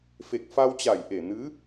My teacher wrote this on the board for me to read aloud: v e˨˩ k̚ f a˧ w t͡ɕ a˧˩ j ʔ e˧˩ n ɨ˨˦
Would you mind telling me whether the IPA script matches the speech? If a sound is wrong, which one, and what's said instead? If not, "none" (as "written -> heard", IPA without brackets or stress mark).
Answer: v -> f